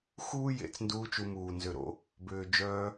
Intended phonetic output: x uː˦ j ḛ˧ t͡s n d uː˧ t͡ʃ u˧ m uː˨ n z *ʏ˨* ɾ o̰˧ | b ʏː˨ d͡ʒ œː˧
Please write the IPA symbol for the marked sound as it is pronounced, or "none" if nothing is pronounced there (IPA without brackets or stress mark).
ʏ˨